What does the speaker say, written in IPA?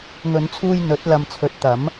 ŋ ɵ˨˧ n t͡sʰ uː˧ j n̪ ɵ˨˥ t̚ l ɐ˨ m t͡sʰ ɵ˨ t̚ t̪ ɐ˨˥ m

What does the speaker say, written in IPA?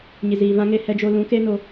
ɲ i˨ z iː˨ v ã˦ ŋ e˧ h ɛ˧ d͡ʒ o˧ l ũ˨˦ k e˦ n o˧

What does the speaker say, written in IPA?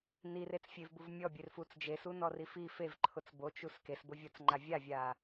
n i r e t͡s fʲ e v b u v mʲ ɔ bʲ e r f u t͡s d͡ʒ e s u n ɔ r i f i f e v ǃʰ ʊ t͡s b o t͡ʃ u s k e s b ʊ vʲ ɔ t͡s ŋ͡ǃ a vʲ a vʲ a

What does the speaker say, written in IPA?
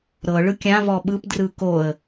ɾ ɤ ɭ ɯ kʲ ã v ɔ ɓ ɯ p d r ɯ k o ə̯

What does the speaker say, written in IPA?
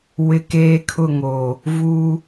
w ɪ˦ k eː˦ kʰ ʊ˦˨ ŋ oː˨ | v uː˦

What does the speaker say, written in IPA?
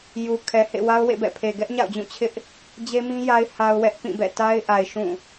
j u˨ kʰ ɛ˨ h ḛ˦˨ w a˦ ʊ̯ w ḛ˦˨ b ɛ̰˦˨ pʰ e˨ ɡ ɛ˦ ʔ ɲ a̰˦˨ ʊ̯ d͡ʑ ũ˦˨ t͡ɕʰ ɪ˦ ʔ | d͡ʑ e˦ m ĩ˦ j a˦ ɪ̯ h a˦ ʊ̯ w ɛ˦ ʔ p ĩ˦˨ b ɛ̰˦˨ t a˦ ɪ̯ ʔ a˨ ɪ̯ ʃ ũ˦˨

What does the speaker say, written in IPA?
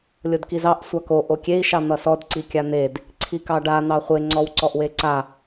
lʲ o d k i z ɑ ʔ sʷ ɑ k o ʔ o kʲ e i̯ ʃ ɑ n̪ ʌ s ɔ d ǀ i kʲ a n̪ e d | ǀʰ i k ɑ ɖ a n̪ ɑ χʷ e ŋ͡ǀ ɔ w ǀ ɔ ʔ w e ǀ a

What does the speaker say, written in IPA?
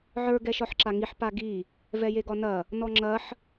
ʕ ə˞ ɡ ɛ ʃ ɒ ħ ǁ a ŋ i ħ p a ɡ i | v ɛ j e ɡ ɒ n ɐ | n ɔ ŋ͡ǁ ɐ ħ

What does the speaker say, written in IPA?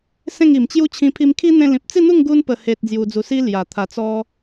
s ẽ˥˧ ŋ i˨˩ m t͡ɕ j u˦ t͡ɕʰ ĩ˧ pʰ i˧ m kʰ i˦ n̪ ẽ˧ l ĩ˨ p̚ t͡s i˥˧ n̪ u˥˧ ŋ ɡ u˧ n p ə˨˩ h e˨ t̚ d͡z j u˧ d͡z u˧ s i˦ l j a˨˩ t̪ʰ a˨˩ t͡s ɔ˧

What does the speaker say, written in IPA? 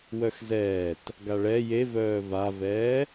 w œ x z ɛː t | ɡ a ɭ ɛ j e v œː v a v ɛː

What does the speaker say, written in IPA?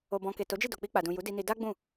o˨ b ɔ̃˨ k e˨ t o˨˦ d͡ʒ i˦˨ d o˨ k͡p i˧ k͡p a˨ d ũ˨ j u˨˦ d i˧ n i˧ d a˦ ɡ͡b ũ˦˨

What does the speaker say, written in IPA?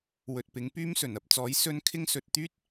w ɵ˨ t̚ p ɪ˨˧ ŋ p yː˥ m s ɵ˨˩ n ɐ˨ p̚ t͡s ɔː˨˥ j s ɵ˥ n kʰ ɪ˥ ŋ s ɵ˧ t̚ t̪ yː˥ t̚

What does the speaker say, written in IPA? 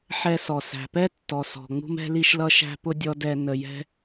ħ ɛ˧ s ɔ˩ s æ̤˩ p ɛ˥ tː ɔ˩ s ɔ̤˩ ŋ͡m ṳ˥ m ɛ̤˥ l i˥ ʃ l ʌ˥ ʃ æ̤˥ p ʊ˥ dʲ ɔ˥ d ɛ˧ n ə˧ j ɛ̤˥

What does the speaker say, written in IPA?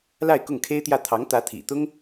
l a˥˧ ɪ̯ k ʊ˥˩ ŋ kʰ e˥ ɪ̯ t̪ j ä˥˩ t̪ʰ ɑ˧˥ ŋ t̪ ä˧˥ t̪ʰ ḭ˨˩ t̪ ʊ˥ ŋ

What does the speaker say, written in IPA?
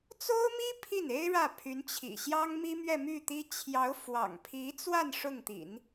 t͡s o˥ ʊ̯ m i˥ pʰ i˥˩ n e˥ ɪ̯ ɻ ä˥˩ pʰ y˧˥ n t͡ɕʰ ḭ˨˩ ɕ j ɑ˥ ŋ m i˥ m ɥ ɛ˥˧ m y˥˩ t̪ i˥ t͡ɕʰ j ɑ˧˥ ʊ̯ f w ɑ̰˨˩ ŋ pʰ i˧˥ t͡s w a˥˧ n ʂ ʊ˥˩ ŋ t̪ ḭ˨˩˦ n

